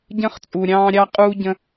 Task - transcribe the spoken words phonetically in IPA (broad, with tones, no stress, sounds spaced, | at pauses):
ɟ ə̃˧ χ t͡sʼ u˩ ɾʲ ɑ̃ː˧ ɾʲ ɑ˧ qʼ uː˧ ɟ ə̃˧